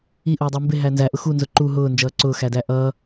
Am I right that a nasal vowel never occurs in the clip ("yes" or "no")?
yes